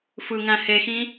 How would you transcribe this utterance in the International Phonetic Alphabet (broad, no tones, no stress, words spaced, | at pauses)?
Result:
fɯŋæ̃ hexĩ